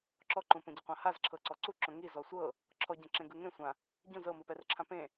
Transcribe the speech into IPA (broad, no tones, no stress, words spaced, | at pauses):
ǁɔǃũpõ ɟɯqʷãhazǁʰɤ ǀɔǀu ǁõŋi zɔsʷɤ | ǁʰɔɟẽ ǁẽɡɯŋẽ sʷã | ɟũz ɤmɯpɛr ǁʰãpẽ